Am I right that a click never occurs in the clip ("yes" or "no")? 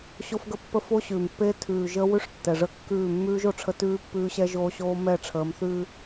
yes